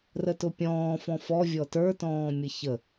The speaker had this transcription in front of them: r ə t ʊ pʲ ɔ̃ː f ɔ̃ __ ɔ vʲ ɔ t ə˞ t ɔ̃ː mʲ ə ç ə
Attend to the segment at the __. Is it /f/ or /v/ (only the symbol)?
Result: f